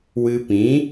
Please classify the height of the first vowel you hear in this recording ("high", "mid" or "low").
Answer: high